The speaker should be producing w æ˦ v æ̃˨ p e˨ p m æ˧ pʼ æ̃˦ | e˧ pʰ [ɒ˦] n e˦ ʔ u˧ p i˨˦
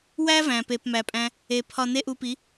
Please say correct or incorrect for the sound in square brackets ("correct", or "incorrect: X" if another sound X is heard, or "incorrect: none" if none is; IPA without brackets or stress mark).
incorrect: ɒ˧